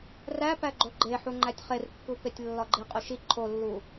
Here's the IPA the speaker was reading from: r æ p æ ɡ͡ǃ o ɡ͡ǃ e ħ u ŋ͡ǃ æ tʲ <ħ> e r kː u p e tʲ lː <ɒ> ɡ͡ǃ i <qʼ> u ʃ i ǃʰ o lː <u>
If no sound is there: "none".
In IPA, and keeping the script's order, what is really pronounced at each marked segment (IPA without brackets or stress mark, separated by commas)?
χ, ɒ, qʼ, u